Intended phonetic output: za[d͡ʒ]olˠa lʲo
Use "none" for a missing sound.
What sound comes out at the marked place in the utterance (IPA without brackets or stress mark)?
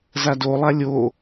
d